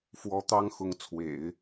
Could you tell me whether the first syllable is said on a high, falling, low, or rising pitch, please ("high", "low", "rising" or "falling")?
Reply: rising